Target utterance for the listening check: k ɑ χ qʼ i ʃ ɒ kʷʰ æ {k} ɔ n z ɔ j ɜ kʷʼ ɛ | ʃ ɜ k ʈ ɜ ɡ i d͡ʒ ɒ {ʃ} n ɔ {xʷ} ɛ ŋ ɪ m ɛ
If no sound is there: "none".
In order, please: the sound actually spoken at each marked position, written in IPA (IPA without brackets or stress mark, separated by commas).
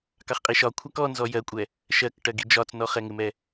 k, t͡s, χ